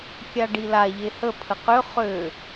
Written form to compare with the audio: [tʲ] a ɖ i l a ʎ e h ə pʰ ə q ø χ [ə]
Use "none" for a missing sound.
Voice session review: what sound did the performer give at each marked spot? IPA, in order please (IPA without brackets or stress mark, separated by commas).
kʲ, ø